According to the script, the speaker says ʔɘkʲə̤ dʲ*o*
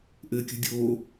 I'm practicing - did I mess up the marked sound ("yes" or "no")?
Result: no